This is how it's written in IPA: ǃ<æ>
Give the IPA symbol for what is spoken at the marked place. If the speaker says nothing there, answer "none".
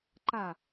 a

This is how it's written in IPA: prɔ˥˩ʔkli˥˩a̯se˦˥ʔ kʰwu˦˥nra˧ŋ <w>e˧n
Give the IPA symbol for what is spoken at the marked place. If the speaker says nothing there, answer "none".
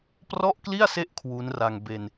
b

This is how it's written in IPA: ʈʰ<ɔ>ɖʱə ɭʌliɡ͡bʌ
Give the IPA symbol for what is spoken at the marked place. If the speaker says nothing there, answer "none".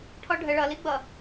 ɔ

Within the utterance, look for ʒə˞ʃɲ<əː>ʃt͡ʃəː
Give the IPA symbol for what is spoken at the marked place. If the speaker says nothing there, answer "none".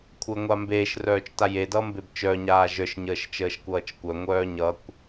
əː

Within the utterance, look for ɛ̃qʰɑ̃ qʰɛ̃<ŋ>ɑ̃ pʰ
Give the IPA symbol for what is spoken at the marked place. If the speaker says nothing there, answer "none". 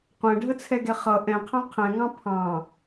ŋ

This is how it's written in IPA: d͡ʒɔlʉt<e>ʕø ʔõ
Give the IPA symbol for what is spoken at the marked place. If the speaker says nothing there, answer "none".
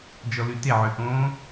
e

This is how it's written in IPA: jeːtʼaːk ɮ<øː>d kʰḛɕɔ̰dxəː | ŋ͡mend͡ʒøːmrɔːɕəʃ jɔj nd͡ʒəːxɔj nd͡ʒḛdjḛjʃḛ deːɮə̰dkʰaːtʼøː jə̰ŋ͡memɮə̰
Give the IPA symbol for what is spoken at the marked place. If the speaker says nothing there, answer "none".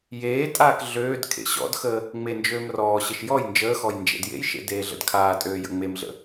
øː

